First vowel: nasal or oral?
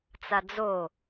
oral